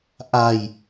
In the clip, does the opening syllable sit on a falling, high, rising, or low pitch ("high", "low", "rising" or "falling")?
low